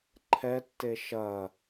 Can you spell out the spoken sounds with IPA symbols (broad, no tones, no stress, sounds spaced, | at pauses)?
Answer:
ǃʰ ɛ tː e ʃ ɐ